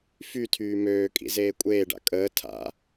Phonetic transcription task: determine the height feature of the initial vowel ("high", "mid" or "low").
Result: high